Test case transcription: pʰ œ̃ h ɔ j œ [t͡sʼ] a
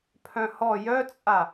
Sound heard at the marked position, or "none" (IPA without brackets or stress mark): t͡sʼ